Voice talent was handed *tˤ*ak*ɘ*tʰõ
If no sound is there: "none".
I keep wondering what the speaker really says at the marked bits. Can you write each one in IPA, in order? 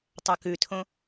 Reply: tˤ, ʉ

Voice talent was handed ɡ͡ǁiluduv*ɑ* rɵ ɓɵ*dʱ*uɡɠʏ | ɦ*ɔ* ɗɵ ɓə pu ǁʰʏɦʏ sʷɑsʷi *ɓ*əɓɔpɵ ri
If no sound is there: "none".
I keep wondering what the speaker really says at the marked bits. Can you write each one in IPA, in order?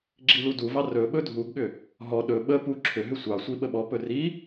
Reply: ɑ, dʱ, ɔ, ɓ

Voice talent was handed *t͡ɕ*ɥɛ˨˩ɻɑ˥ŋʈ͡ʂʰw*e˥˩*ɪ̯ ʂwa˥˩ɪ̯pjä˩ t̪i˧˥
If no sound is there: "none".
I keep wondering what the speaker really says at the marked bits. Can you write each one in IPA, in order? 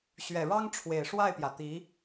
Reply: ɕ, e˨˩

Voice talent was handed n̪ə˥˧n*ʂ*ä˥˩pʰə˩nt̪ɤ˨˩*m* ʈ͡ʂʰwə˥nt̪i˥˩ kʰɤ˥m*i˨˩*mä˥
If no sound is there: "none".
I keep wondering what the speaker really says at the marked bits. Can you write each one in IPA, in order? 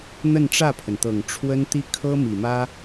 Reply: ʈ͡ʂ, ŋ, i˨˩

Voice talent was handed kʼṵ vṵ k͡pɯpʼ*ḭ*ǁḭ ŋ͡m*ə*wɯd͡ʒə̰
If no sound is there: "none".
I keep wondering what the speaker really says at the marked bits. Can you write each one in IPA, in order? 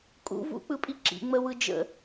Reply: i, ə

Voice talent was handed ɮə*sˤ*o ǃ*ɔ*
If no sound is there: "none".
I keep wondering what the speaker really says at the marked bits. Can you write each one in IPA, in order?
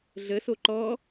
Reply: s, ɔ

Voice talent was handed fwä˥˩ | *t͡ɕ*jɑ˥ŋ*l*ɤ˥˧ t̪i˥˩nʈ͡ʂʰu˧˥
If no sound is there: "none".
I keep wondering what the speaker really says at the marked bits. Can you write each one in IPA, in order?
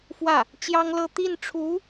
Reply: t͡ɕ, l

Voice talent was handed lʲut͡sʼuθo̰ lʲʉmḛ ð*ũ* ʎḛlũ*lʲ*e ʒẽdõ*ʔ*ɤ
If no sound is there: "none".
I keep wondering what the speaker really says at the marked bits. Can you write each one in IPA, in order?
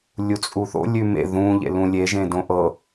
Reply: ũ, lʲ, ʔ

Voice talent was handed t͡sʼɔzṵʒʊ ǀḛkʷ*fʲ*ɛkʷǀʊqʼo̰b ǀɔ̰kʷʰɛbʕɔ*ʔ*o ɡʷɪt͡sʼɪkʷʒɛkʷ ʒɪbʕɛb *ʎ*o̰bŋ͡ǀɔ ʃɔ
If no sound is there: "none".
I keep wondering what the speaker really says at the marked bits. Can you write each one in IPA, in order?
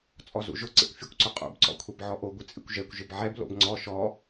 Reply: fʲ, ʔ, l

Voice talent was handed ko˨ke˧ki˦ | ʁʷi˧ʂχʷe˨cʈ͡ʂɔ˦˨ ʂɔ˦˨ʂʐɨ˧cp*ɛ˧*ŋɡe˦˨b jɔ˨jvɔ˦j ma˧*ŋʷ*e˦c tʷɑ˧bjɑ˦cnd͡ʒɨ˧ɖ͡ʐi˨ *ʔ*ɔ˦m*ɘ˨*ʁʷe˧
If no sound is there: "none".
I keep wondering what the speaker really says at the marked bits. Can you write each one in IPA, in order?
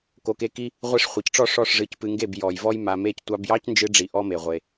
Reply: ɨ˧, m, ʔ, e˨

